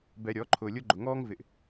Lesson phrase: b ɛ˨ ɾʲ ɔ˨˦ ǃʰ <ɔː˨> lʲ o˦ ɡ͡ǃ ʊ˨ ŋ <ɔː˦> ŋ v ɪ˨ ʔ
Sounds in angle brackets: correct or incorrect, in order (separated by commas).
incorrect, correct